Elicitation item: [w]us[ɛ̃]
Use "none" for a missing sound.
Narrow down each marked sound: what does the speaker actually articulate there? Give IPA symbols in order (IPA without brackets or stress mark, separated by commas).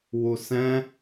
w, ɛ̃